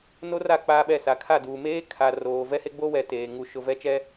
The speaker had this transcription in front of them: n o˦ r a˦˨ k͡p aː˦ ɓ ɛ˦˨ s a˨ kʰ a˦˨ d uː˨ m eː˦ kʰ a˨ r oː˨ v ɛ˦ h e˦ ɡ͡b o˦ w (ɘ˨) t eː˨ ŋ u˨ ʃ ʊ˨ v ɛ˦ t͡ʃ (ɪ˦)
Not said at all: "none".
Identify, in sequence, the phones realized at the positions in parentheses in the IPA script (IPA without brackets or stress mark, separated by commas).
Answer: ɛ˨, ɛ˦